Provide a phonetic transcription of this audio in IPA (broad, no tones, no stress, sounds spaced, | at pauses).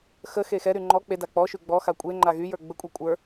x ə x e x ɛ ɾ y ŋ͡ǃ ɔ k͡p e d a k͡p ɔ ʃ y ɡ͡b ɔ x a kʷʼ e ŋ͡ǃ a ɣ y j ə˞ ɡ͡b ə kʷʼ e kʷʼ ə˞